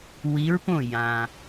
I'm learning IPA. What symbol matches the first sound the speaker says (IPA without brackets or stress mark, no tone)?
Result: w